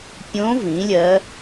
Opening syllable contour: rising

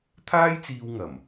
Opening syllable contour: high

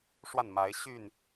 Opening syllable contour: falling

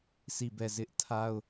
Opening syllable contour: falling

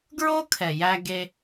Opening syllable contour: high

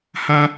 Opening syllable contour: high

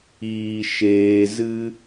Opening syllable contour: low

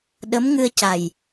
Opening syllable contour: rising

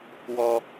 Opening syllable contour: low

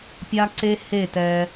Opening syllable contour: high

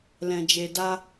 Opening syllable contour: low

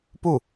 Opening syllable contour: falling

